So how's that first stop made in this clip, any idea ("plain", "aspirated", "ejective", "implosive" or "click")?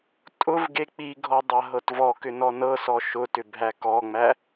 ejective